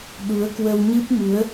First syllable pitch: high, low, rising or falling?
rising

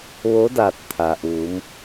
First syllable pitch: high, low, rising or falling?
rising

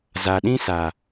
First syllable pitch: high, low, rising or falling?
low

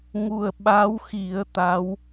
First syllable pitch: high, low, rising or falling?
low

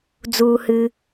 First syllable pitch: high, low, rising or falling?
low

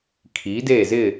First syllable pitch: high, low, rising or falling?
rising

